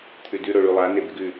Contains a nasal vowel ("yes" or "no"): no